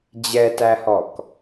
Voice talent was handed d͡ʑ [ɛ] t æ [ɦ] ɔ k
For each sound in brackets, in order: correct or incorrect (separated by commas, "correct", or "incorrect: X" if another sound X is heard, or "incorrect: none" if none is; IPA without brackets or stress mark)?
correct, incorrect: h